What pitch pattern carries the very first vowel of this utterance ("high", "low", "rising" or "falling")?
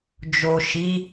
low